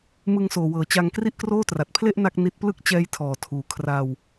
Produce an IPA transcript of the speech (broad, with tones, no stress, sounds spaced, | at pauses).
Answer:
m ɯ˧ ŋ s oː˨˩ w ɤː˩˦ t͡ɕ a˧ ŋ k r i˥˩ ʔ k r oː˥˩ t r a˨˩ t̚ pʰ l e˥˩ ʔ n a˥˩ k̚ n i˦˥ t̚ p l ɯ˥˩ k̚ t͡ɕ ɛː˦˥ j tʰ ɔː˨˩ tʰ uː˨˩ kʰ r a˧ w